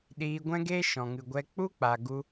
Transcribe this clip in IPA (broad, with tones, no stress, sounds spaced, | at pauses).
ɗ iː˧ ɡʷ ɛ̃˦ ɡ eː˦ ʃ ɔ̃˨ ŋ ɨ˨ ɡʷ ɛ˧ k͡p u˦ k͡p a˨ ɡ u˧